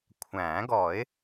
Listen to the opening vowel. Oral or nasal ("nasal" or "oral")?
nasal